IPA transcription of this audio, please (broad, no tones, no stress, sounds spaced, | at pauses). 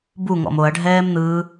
b u ŋ ɔ̰ m o ɐ̯ ɖʱ ɛː m n̪ ɯː